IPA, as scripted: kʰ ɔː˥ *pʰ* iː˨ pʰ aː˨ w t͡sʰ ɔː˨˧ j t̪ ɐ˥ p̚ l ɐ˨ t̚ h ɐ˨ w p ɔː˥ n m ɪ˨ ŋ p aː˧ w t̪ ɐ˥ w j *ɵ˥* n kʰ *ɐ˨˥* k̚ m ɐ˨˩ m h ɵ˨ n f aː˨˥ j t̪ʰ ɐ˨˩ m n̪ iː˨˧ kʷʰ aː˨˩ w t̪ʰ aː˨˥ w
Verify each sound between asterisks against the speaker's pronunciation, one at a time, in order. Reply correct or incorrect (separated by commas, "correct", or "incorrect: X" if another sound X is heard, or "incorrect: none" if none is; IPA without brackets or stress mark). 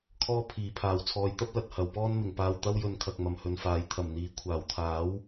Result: correct, incorrect: ɵ˧, incorrect: ɐ˨